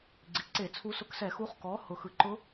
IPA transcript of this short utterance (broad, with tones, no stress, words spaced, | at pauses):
ɡ͡ǀi˩ǀe˧˩˧t͡sʰu˧˥ sʊ˧˥ksɛ˧˩˧xu˧˥χ kɔ˩˥ hʊ˩ xɯ˩ǃʊ˧˥